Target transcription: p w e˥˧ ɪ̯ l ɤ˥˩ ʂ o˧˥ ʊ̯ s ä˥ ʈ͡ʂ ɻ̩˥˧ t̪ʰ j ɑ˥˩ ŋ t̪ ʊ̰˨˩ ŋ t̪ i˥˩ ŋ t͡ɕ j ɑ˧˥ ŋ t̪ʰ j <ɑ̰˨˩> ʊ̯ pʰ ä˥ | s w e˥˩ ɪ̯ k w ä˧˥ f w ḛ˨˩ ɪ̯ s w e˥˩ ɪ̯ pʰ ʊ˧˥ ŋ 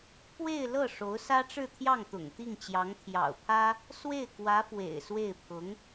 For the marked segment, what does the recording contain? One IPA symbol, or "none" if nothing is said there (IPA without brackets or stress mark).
ɑ̰˨˩